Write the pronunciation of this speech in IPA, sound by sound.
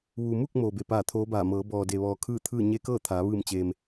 ʋ u˩ m u˥˨ k̚ m oː˩ b e˩ p aː˧˩ t̪ʰ oː˧˥ b aː˧˩ m ɤː˩˧ b ɔː˩ d e˩ ʋ ɔː˩ kʰ ɯː˥˨ t̪ʰ ɯː˥˨ ɲ e˧˥ k ɤː˥˨ t̪ʰ aː˩˧ ʋ ɯː˧˩ m t͡ɕ eː˩ m

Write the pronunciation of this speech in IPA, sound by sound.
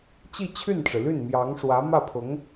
t͡ɕ i˥˧ t͡ɕʰ y˥˩ n ʈ͡ʂ ɻ̩˩ l y˥˩ n m j ɑ˧˥ ŋ ʂ w ä˧˥ m ä˥˩ pʰ ʊ˧˥ ŋ

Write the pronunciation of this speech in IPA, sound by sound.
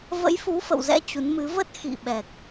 v ə̰˧˥ j f u˨˦ f ə̰˧˨ w z ɛ̰˧˥ t͡ɕ u˨˦ n m ɨ˨˦ v ə˦˥ t̚ x ḭ˧˨ ɓ ɛ˨˩ k̚

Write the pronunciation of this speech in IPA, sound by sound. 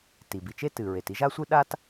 t i˩ b i˩ t͡ʃ e˥ t ɨ˩ ɹ e˩ t i˥ ʒ a˥ sʷ ɨ˥ ɗ a˥ t

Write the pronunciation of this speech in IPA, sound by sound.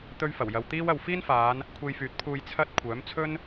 t̪ ɵ˥ ɥ f ɐ˨˩ w j ɐ˨ w t̪ iː˥ w ɐ˨ w f iː˥ n f aː˨˧ n | kʷʰ e˧ j f yː˨˥ t̚ pʰ uː˧ j t͡sʰ ɐ˥ t̚ kʷʰ œː˨˥ m t͡sʰ ɵ˥ n

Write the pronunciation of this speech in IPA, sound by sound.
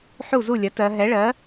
ħ u˥˩ z u˥˩ lʲ ɐ˩˥ t ɜ˩˧ ɦ ɛ˩˥ ɭ ɜ˩˥

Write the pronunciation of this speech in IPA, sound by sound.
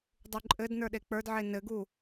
dˤ u ǃʼ ɘ d n ə˞ ɗ e k͡p ə˞ d ʕ e n ɘ ɡ u

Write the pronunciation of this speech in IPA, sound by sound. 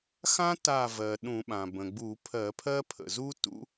x ã˥ t a˧˩ v ɜ˩ ɗ ũ˧˩˧ ɓ ã˩ b ə̃˩ ɡ͡b u˧˩˧ pʰ ɜ˧˩˧ pʰ ɜ˥ pʰ ə̰˩ z u˥ t ṵ˧˥

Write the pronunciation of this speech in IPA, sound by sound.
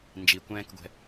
n d͡ʒ i kʷ ɛ̃ː k ɡʷ ɛ̤

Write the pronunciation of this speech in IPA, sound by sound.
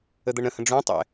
ə d̪ ɤ ɳ ɾ ə̃ h ə̃ ɖ͡ʐ ũ tˤ ɛ̰

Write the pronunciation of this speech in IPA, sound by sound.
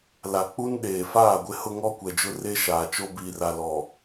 l a˨ k͡p u˦ n ɗ eː˨ f aː˦˨ ɡʷ ɪ˦ h ʊ˦ ŋ ɔ˦ kʷ ɛ˨ d͡ʒ ʊ˦ r e˦ ʃ aː˨ t͡ʃ o˦ b iː˨ r a˨ l ɔ˨

